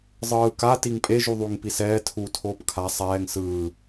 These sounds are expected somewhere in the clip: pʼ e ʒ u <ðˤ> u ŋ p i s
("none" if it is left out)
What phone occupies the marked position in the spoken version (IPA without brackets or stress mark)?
ðˤ